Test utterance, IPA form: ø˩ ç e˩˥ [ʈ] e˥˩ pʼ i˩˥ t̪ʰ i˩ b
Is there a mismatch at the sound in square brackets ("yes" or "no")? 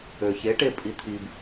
no